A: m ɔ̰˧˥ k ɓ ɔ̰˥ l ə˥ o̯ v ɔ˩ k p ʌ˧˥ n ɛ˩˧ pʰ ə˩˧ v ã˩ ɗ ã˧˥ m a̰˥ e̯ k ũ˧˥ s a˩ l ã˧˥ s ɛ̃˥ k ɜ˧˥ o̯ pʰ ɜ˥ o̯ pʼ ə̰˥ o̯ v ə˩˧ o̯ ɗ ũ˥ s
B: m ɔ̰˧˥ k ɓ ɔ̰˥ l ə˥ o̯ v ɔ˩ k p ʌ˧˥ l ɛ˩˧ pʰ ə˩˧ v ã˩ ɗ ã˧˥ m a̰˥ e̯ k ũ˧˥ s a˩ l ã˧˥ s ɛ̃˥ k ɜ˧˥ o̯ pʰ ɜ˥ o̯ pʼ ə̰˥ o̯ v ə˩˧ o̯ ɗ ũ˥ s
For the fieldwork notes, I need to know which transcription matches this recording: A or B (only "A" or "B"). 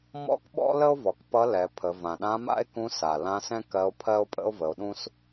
B